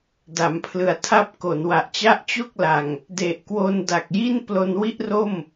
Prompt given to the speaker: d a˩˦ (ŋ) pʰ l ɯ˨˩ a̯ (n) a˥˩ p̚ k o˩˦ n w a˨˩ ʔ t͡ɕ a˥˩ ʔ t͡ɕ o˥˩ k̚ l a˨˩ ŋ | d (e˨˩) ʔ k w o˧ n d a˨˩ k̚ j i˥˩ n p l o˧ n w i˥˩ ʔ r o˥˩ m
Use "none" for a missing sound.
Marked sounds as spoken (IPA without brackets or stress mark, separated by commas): m, tʰ, e˨˩